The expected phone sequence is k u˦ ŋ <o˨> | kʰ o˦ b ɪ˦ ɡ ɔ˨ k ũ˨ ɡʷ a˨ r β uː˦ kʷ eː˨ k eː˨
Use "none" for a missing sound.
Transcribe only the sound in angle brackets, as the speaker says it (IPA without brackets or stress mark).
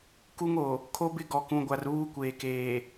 o˨